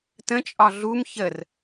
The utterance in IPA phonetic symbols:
tə̃t͡ʃʼɒ ɮum çər

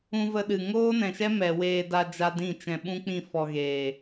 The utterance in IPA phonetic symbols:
ũ˧və˧ɗɨ˨ ŋoː˦nɛ̃˨ʃɛ˦ mɛ˨weː˧da˧ d͡ʒa˦dĩ˦˨t͡ʃɛ̃˧ ɓũ˦k͡pĩ˦˨ fɔ˧ɣeː˨

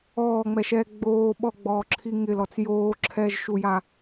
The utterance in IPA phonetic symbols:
ɔːŋ͡mɛʃɛː ɡ͡boː ɓɔɡ͡bɔːǁʰi ŋɪlɔt͡s joːǁʰɛːʒʃuja

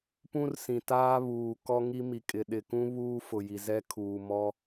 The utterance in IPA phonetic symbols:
pũ˦rsĩ˨taː˦βuː˨ kɔ˦ŋi˦mi˨ kʼɪ˨ ɗɪ˨kũ˦ βuː˦fʊ˨ji˨ zɛ˦kʰuː˨ mɔ˦

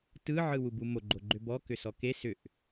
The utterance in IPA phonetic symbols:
tɯ ʕɯwubumo ɡ͡ǃoɡ͡ǃʏbɔ kʏsɔke sʏʔ

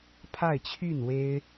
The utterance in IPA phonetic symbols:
pʰa˥˧ɪ̯t͡ɕʰy˥˩n we˥ɪ̯

